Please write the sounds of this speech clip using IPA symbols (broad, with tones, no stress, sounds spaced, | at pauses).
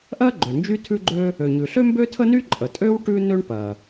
ʔ ɜ˥ ɡ͡ǃ ø˩ n d͡ʒ y˥ tʰ ʉ˥ ɡ͡ǃ ø˥ | ø˩ ɲ ʉ˩ ɬ ø˥ m b ø˥ tʰ ə˥ n y˥ ǃʼ ə˩ tʼ ø˥ w ʈ ʉ˥ n ø˥ ɳ p ɜ˩